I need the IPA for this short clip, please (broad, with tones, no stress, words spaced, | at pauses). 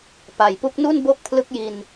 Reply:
pa˨˩jpu˦˥k̚nu˥˩n bo˥˩k̚pʰlɯ˦˥k̚ ji˧n